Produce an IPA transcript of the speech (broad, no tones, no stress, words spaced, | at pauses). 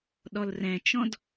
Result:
ɗɔlrɛ̃t͡ʃɔ̃d